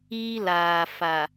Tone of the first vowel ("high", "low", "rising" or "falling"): high